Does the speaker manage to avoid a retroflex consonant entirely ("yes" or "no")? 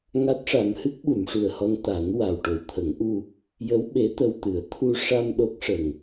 no